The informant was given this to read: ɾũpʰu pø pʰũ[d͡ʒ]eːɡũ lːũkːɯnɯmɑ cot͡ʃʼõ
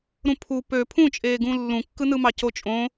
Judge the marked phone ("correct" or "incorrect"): incorrect